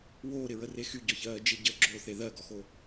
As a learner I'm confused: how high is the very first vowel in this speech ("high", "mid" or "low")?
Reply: mid